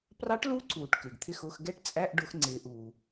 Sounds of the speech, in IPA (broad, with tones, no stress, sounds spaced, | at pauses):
p r ɑ˧˥ ʈ l u˧˥ ǀ uː˩ ʈ k ɪː˩ ɡ t̪ʰ ɪ˥˩ x ʊː˧˥˧ x ɡ ɛ˥˩ ʈ t͡sʼ æ˧˥˧ ʔ ɖ ʊ˧˥ x ŋ͡ǀ ɪː˩˧ ʔ uː˩